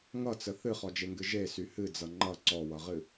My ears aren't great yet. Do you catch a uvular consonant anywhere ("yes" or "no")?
yes